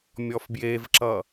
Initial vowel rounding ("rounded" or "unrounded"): rounded